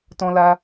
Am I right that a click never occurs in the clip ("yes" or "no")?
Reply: yes